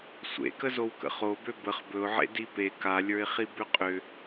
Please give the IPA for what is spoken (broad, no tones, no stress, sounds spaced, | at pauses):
sʷ ḛ k ə z o w k ə̰ χ o b ø b ə χ b ɵ ʊ̯ ʕ ḛ d i p e k a lʲ ə˞ ɪ̯ χ i b ʏ qʼ ʏ